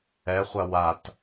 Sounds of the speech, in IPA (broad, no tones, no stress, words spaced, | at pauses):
ɛχʷa wat